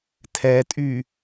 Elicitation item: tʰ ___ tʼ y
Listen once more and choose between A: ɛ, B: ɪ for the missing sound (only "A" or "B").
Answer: A